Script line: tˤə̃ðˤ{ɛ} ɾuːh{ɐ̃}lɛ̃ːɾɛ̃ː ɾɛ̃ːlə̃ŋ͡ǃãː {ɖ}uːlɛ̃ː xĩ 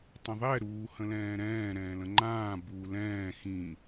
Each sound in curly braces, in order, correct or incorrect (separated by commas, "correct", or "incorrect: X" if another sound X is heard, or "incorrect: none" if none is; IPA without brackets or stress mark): correct, incorrect: ə̃, incorrect: b